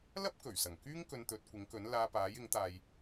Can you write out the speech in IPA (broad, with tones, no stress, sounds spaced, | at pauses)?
l ɐ˥ p̚ k ɵ˨˩ ɥ s ɐ˨˩ ŋ k yː˥ ŋ k ɵ˧ n t̪ ɵ˨˥ t̚ kʷ ɪ˨˥ ŋ k ɵ˨˥ n l aː˧ p aː˨˥ j ɪ˨˥ ŋ t̪ aː˧ j